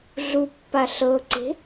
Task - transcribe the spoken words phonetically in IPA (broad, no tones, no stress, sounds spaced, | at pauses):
ɮ u pː a ɬ ɤ ǀ e̤